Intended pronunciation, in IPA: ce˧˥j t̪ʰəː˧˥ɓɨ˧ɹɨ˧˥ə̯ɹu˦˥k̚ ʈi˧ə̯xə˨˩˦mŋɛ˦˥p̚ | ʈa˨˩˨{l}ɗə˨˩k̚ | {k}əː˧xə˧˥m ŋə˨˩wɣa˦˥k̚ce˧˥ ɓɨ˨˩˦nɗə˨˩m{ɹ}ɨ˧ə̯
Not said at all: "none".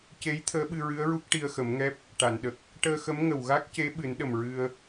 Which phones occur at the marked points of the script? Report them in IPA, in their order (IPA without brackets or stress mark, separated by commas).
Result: n, ʈ, ɹ